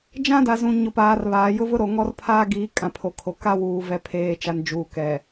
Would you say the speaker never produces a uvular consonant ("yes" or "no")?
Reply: yes